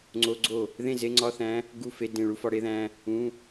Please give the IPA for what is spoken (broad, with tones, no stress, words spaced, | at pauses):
ŋ͡ǀo˧˥˧ɡ͡ǀo˥˩ | ðẽ˥˩ze˧˥˧ŋ͡ǀɒ˧˥˧θæ̃˧˥ | ɡu˥˩fe˧˥˧ dẽ˥˩ɭu˥fɒ˧˥ ɽe˥ðæ̃˧˥˧ | ũ˧˥˧